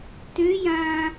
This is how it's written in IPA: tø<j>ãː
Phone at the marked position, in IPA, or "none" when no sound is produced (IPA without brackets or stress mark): j